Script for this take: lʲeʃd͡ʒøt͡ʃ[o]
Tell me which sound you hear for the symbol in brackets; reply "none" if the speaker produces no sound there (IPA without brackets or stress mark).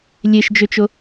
o